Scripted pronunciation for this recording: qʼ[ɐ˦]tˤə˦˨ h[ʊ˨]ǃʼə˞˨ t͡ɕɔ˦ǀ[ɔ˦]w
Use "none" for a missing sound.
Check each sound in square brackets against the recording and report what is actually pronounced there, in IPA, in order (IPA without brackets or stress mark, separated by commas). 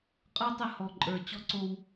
ə˞˦, ɔ˨, o˦